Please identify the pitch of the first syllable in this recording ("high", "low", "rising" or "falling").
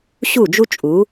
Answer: falling